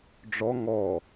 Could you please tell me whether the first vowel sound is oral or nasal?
oral